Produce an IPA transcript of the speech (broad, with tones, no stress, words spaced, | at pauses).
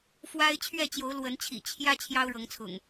fwa˦ɪ̯ t͡ɕʰɥɛ˥˨t͡ɕjo˨˦ʊ̯ lwə˨˦nt͡ɕʰḭ˨˩ t͡ɕʰjä˦ t͡ɕʰjɑ˦ʊ̯ɻɤ˨˦ŋt͡sʰʊ̰˨˩ŋ